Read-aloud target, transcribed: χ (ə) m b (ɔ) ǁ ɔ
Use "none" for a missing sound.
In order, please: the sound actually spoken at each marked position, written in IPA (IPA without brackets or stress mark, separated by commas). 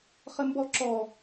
ə, ɔ